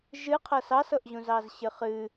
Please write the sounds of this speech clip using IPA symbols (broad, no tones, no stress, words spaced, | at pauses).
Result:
ʒɨqʰɤ sɑsɤʔʑũzɑz ɕɨχɨ